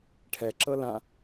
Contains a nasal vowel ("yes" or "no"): yes